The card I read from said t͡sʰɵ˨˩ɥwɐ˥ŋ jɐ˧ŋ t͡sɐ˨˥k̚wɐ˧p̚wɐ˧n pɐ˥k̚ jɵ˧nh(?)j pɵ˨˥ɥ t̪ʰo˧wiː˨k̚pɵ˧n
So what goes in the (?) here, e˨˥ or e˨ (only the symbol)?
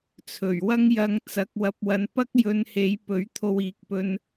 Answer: e˨˥